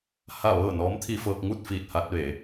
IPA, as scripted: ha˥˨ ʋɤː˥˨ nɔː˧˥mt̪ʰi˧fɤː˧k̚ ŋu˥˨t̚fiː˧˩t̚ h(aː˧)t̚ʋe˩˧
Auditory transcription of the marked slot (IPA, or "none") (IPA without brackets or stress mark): a˧